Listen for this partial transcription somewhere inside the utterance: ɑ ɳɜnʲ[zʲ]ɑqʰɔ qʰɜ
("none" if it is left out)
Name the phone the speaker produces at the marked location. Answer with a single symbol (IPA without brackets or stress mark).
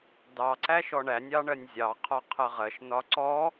zʲ